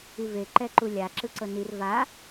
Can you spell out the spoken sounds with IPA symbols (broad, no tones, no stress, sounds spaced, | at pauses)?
i v e ǃ ɛ ǃ u lʲ a ǁ ɯ ǀ ɤ n i r v a